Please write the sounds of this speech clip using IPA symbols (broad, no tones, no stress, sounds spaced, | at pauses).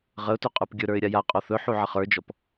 ʁ ə ʊ̯ t ɵ qʼ ə˞ p ɡʲ ɵ ɾ ə˞ ɪ̯ ɾʲ a j a qʼ ɔ θ ɵ ħ u ʕ ə χ ə˞ d͡ʒ ɔ p